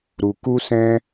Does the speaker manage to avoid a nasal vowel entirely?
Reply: no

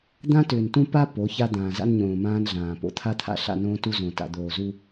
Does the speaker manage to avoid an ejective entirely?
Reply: yes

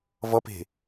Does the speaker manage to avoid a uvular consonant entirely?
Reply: yes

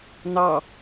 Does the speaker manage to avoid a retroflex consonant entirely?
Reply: yes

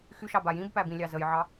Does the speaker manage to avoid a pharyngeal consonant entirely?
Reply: no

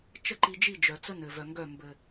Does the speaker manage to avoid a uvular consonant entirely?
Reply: yes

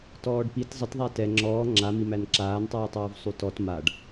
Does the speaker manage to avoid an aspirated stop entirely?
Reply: yes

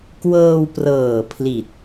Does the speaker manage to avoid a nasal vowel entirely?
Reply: yes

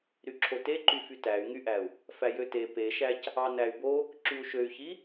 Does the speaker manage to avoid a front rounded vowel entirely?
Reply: no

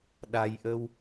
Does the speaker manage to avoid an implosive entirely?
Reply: no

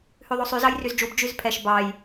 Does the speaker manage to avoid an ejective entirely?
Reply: yes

